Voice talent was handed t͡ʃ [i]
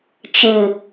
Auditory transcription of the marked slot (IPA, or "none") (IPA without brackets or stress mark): ɨ